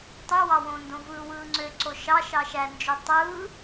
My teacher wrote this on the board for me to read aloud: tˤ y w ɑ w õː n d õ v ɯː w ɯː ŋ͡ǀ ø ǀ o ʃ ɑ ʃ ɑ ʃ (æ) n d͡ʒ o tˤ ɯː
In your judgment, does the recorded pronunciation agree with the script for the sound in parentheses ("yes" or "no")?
yes